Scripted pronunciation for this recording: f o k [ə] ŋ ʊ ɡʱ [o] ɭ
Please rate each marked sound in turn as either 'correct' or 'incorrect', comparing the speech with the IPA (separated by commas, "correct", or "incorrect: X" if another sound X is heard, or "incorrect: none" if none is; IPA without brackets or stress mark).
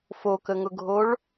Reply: correct, correct